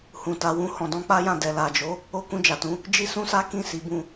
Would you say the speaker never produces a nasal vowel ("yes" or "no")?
no